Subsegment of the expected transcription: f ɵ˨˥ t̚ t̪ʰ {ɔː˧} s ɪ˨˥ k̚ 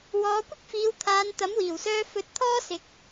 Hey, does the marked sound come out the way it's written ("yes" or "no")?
no